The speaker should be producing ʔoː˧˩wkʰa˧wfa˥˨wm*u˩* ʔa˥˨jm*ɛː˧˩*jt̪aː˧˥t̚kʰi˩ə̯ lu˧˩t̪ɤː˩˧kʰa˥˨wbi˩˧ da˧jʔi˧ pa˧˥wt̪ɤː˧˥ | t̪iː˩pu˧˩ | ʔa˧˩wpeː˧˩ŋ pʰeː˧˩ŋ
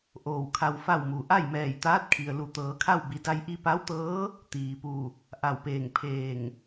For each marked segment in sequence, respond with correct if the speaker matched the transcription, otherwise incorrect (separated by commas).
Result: correct, correct